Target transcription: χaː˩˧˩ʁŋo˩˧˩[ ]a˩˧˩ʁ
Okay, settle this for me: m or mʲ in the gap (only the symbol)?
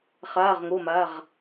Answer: m